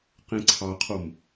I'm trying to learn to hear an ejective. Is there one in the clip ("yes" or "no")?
no